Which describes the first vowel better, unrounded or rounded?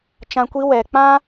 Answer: unrounded